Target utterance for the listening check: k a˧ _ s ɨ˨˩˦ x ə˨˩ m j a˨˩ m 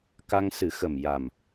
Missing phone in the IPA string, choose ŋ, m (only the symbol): ŋ